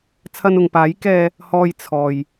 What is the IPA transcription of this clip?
t͡sʰɐ˧nʊ˨ŋpaː˨˥j kɛː˨ | hɔː˧j t͡sʰɔː˨j

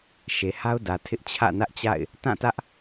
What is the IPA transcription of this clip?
ʃe˨ha˦ʊ̯dä˨ tʰɪ˦ʔ t͡ɕʰä̰˦˨nä˦ʔt͡ɕa̰˦˨ɪ̯ | tã˦˨tä˦ʔ

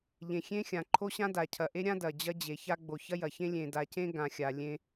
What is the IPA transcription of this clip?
ʎẽ˨xʲẽ˦xʲã˨ ǃʰo˦ɕã˦ da˨cʰɐ˨ʔe˦ɾʲã˦ dɐ˨d͡ʑɐ˦d͡ʑe˨ça˦ ɡ͡bo˨çɐ˦jɐ˨çẽ˦ lʲẽ˨da˨cẽ˦ ɡã˨xʲa˨ lʲẽ˦

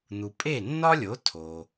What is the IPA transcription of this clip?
n̪u˩pʼe˥˩nːɒ˥lʲo˩˥ tʰo˩

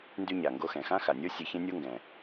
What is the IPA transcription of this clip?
ndy˥ɲa˩ŋɡo˥xɛ̃˩ xã˥xa˩nʲo˥ sʲɛ˧çẽ˥nʲo˥ŋɡɛ̃˩

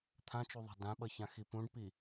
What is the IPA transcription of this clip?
t̪ʰãt͡ʃuðˤa̤ dãɓʌçãxi pũɖpi

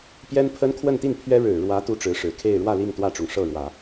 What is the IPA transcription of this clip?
pjɛ˥npʰə˥nkʰwə˥˧nt̪i˥˩n pʰɥɛ˥ ɻɻ̩˨˩ɻwä˧˥ t̪u˥˩ʈ͡ʂɻ̩˧˥ʂɻ̩˨˩kʰe˥˧ɪ̯ ɻwä˥˧li˥˧ŋ t̪wä˥˩ʈ͡ʂʊ˩ŋʂɤ˥˩ɻwä˨˩˦

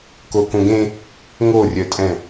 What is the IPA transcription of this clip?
kokõɡẽ | ŋorʲœtʼɛ̃

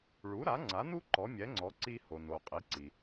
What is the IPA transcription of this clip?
ɭu˩˥ɾa˩˥ŋ͡ǀa˩˥nu˥ ǃɔ˩˥mʲɛ˩˥ŋ͡ǀɔ˩˥ ǀi˧ho˩no˩ qʼi˩˥ǀi˩

